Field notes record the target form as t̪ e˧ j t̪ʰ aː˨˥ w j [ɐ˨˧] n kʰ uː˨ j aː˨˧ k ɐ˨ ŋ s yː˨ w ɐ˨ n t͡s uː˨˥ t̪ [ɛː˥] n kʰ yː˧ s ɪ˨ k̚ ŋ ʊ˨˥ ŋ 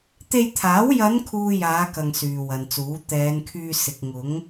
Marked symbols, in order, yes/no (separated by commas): yes, no